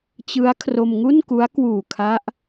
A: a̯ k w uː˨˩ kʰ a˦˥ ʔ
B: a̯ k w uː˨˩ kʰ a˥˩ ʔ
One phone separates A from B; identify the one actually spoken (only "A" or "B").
A